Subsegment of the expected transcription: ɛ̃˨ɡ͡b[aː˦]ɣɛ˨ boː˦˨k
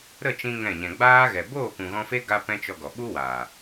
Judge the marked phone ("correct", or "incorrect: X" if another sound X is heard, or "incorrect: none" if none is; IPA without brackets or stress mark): correct